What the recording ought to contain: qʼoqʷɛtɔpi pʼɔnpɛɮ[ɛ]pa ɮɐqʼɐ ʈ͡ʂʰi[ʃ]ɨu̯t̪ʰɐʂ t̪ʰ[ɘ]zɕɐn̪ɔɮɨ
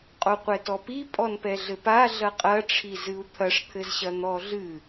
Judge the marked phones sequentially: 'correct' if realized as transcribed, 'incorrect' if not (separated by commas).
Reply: incorrect, incorrect, correct